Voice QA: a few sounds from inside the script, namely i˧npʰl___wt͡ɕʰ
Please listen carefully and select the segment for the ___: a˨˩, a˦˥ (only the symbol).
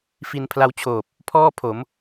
a˦˥